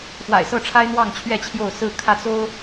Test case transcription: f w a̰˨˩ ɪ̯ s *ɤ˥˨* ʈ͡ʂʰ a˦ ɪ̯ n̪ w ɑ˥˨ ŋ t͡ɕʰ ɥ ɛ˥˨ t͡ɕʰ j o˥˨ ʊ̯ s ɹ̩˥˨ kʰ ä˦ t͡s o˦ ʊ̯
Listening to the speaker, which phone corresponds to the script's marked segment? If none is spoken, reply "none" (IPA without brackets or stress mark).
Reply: ɤ˥˨